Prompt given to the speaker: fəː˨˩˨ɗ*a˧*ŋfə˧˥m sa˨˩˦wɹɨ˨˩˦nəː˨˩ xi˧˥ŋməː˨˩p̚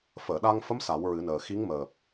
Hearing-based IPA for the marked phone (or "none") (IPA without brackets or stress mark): a˧